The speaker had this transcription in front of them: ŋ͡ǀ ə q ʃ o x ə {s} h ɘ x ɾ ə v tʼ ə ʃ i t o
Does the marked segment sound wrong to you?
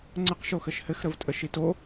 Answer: yes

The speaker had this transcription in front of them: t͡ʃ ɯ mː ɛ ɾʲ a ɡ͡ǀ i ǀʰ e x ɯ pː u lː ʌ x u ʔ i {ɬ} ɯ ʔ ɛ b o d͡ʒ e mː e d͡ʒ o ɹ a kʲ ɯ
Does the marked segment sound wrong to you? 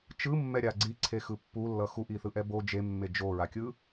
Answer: yes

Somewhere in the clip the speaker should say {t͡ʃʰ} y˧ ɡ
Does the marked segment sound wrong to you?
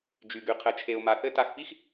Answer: yes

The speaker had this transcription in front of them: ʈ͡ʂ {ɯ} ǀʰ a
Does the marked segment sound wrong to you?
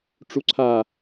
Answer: yes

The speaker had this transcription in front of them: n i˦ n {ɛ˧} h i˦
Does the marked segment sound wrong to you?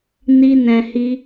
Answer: yes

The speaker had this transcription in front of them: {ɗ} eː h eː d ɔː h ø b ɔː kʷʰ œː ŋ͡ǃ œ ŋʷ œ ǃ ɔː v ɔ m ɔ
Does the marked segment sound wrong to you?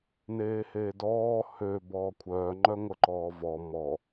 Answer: yes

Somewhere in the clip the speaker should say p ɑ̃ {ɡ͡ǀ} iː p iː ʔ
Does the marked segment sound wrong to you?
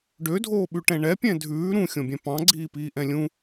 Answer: no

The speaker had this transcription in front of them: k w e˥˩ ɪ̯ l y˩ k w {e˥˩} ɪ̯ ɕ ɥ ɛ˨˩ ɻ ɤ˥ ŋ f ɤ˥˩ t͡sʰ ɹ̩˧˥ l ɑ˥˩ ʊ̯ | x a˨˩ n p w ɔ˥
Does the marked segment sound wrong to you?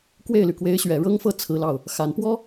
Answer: yes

